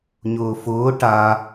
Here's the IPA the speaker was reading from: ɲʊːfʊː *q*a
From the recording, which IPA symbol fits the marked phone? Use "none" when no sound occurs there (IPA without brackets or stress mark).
ʈ